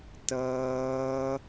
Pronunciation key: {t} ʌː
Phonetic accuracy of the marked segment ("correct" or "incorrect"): correct